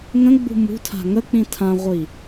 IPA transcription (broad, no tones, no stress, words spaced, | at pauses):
ŋə̃ɡ͡bṳ mṳtʰa̤ ŋək͡pĩ tʰãʁʷi